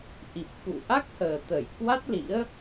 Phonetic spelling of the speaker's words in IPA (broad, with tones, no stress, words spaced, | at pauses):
ʔi˨˩p̚xṵ˧˨ʔa˦˥k̚həː˨˩ t̪ə˧˩jkwa˦˥t̚lḭ˧˥ə̯